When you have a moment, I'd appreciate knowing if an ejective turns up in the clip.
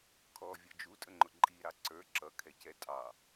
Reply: yes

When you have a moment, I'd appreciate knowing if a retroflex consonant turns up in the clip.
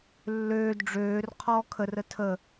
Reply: yes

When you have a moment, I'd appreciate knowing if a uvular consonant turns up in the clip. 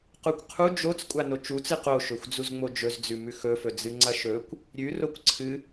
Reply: yes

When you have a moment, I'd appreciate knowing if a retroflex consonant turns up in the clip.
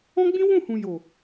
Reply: no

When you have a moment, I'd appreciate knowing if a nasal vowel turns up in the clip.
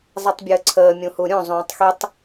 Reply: yes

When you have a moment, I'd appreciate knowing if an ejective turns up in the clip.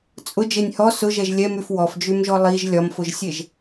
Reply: yes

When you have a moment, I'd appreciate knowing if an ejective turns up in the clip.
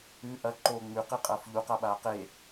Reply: yes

